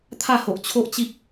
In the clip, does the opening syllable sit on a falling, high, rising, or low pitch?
falling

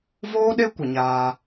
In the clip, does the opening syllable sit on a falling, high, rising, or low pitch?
high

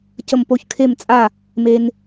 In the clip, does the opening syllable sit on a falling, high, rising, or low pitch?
falling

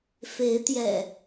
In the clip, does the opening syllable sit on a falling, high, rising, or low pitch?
rising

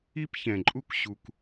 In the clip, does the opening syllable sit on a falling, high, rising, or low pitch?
high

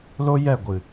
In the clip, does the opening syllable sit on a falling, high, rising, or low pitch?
high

